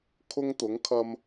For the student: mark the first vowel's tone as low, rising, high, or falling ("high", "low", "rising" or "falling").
high